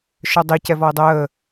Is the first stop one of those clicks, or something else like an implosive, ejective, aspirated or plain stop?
plain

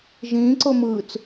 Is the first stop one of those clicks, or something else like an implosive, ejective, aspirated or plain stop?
click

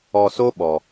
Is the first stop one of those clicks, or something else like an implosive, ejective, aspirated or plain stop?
implosive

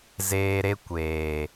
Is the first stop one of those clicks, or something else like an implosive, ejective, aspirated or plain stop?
plain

